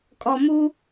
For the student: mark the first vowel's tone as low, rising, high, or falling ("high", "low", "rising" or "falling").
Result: low